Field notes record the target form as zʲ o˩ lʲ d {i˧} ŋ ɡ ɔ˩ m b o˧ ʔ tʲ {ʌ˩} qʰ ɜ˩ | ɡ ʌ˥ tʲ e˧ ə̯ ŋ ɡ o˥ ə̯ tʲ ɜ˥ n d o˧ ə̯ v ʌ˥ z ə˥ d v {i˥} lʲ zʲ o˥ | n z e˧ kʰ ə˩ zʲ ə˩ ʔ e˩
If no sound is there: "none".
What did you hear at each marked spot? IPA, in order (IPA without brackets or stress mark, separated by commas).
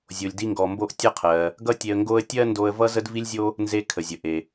i˧, ʌ˥, i˥